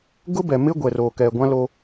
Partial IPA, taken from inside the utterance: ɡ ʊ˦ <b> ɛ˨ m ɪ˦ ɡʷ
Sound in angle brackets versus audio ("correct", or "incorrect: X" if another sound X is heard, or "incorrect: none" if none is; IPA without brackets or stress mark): correct